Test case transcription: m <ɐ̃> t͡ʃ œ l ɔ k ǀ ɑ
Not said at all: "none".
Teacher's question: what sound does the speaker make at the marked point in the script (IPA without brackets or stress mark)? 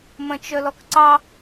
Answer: ɐ̃